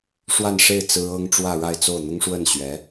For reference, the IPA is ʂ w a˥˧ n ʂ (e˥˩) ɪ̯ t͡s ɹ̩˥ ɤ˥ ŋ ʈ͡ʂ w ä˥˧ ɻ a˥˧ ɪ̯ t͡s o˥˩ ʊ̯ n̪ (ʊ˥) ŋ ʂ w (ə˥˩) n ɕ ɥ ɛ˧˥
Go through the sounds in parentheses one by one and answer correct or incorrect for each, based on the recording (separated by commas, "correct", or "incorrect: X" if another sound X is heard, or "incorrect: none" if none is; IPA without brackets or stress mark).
correct, correct, correct